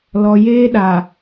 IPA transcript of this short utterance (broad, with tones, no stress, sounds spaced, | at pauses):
l ɔ˨ j eː˦ ɗ a˨